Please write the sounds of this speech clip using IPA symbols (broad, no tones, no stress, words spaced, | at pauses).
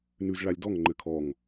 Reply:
nʉz ɭalʲdɔŋ ŋ͡ǃɘkʰɔŋ